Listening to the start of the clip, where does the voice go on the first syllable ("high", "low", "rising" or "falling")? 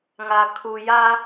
low